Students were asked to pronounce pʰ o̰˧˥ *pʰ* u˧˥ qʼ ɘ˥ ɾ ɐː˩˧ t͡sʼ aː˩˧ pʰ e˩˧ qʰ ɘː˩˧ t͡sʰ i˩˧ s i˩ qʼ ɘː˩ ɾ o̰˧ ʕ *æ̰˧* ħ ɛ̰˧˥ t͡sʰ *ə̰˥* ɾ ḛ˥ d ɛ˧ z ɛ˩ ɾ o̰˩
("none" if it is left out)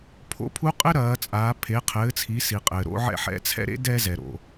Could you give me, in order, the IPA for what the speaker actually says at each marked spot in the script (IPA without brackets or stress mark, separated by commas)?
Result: pʰ, ɛ̰˧, ɛ̰˥